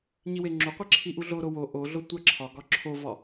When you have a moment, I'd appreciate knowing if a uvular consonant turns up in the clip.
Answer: yes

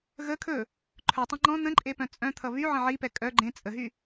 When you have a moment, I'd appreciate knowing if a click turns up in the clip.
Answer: yes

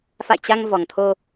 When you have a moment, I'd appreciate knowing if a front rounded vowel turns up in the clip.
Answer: no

